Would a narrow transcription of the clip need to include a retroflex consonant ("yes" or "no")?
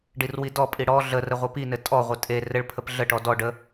yes